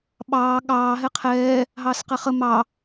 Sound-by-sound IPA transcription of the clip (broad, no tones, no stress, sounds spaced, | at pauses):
ɓ ɑː ɠ ɑː ɦ ɛ qʰ ɛː | ɦ ɑː s q ɛ χ ə m ɑ